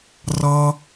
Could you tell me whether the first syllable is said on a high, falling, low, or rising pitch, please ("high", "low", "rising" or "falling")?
high